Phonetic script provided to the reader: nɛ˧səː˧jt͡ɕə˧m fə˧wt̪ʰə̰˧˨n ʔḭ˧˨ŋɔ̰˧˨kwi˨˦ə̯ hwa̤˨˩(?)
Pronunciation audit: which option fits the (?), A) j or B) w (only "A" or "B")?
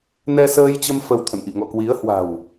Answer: B